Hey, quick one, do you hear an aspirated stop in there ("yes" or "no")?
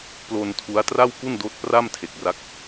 yes